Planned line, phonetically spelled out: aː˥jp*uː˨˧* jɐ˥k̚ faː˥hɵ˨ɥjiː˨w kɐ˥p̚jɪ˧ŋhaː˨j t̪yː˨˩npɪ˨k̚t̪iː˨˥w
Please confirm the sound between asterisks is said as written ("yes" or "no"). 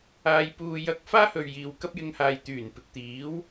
no